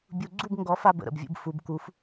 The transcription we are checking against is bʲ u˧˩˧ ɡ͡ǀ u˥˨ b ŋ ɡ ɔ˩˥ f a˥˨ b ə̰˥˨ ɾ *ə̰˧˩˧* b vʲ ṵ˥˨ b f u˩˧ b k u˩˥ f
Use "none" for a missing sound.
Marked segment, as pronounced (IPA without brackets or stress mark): ə̰˩˧